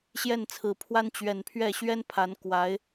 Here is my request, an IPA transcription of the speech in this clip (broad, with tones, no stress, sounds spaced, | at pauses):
ɕ j ɛ˥˩ n t͡sʰ ɹ̩˨˩ pʰ w a˥ n t͡ɕ ɥ ɛ˨˩ n pʰ ɥ ɛ˥˩ ɕ ɥ ɛ˥ n pʰ a˧˥ n k w a˧˥ ɪ̯